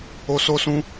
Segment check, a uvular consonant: absent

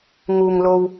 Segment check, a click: absent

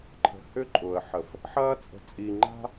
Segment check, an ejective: present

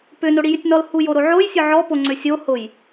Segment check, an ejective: absent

